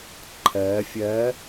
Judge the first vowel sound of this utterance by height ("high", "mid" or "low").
mid